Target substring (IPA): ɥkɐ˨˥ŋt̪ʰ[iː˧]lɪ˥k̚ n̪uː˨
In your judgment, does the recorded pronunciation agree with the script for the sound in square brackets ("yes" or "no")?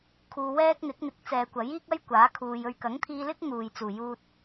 yes